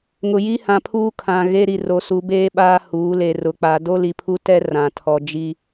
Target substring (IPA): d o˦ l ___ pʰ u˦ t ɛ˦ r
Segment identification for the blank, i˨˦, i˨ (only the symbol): i˨